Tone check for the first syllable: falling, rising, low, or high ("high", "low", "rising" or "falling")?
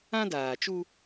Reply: high